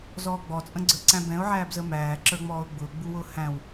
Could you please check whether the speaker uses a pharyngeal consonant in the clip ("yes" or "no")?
yes